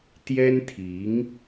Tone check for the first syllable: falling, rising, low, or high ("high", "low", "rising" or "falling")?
high